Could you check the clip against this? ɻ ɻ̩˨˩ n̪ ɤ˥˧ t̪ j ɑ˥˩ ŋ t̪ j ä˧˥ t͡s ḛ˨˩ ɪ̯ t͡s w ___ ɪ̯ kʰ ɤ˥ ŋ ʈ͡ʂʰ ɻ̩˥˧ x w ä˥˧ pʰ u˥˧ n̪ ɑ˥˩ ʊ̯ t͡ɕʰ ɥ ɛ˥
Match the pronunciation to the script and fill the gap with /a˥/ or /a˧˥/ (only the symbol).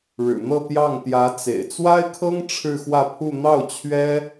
a˥